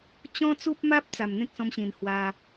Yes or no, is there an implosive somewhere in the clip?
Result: no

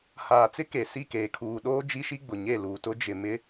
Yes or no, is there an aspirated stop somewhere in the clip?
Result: yes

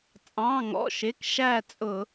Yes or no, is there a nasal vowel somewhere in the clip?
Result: yes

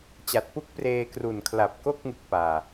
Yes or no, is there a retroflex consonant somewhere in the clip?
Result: no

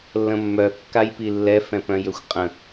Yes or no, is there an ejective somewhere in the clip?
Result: yes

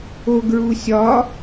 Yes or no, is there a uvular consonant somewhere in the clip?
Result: no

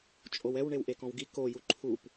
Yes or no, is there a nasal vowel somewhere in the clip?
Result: yes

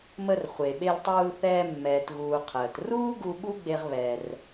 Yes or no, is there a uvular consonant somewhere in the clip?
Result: yes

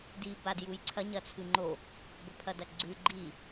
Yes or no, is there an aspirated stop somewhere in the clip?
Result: yes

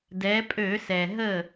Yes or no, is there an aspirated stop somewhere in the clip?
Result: no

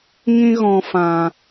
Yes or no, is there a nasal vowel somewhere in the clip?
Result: yes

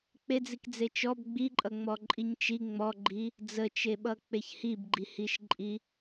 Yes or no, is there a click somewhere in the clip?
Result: yes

